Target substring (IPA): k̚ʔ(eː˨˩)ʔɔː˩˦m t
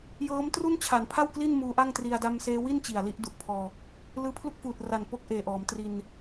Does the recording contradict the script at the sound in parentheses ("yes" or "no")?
no